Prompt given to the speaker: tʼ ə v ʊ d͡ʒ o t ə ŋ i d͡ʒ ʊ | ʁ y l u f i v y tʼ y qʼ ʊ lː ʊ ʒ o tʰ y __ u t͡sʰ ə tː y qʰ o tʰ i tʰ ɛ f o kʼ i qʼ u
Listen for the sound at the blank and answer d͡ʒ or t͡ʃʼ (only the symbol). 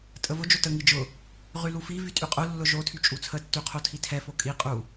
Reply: t͡ʃʼ